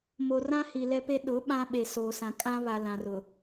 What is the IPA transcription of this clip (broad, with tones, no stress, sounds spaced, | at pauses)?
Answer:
m o˨ r ã˦ h i˨ l ɛ˦ p e˦ ɗ ʊ˨˦ ɓ ã˦ ɓ e˨ s oː˨ s ã˨ kʼ ã˦ β a˨ l ã˨ r ʊ˨